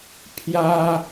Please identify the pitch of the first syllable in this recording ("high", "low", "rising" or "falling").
high